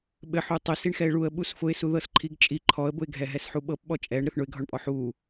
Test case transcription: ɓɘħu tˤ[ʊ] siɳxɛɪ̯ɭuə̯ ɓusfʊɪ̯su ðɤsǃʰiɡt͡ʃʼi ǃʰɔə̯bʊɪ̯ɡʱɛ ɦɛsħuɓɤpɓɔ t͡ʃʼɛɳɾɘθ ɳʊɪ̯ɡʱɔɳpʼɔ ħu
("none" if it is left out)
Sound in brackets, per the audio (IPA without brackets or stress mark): ʊ